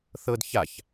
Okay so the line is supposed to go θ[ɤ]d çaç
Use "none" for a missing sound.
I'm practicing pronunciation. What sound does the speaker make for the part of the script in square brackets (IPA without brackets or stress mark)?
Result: ɤ